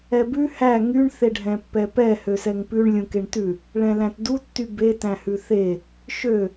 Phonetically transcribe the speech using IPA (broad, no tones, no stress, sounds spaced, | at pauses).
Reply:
ɛ b ʉ h æ ŋ y ɳ θ e ɖʱ ɛ̃ pː ɛ p ɛ h ø s ɛ ŋ p ʉ ɳ lʲ ũ k e ɳ t ʉ | ɭ ɛ̃ l æ̃ t d u tː y b e t æ̃ h ʉ θ e | ʃ ø